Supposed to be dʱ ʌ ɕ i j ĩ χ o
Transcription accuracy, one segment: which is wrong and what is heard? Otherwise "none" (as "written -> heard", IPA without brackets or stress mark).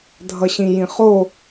i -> ĩ